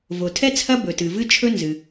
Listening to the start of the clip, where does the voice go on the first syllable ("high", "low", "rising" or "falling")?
low